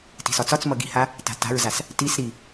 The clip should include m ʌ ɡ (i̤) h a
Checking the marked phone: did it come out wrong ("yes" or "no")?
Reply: no